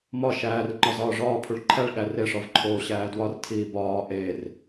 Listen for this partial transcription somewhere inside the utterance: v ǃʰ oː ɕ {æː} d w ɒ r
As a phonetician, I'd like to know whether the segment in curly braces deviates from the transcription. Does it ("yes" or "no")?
no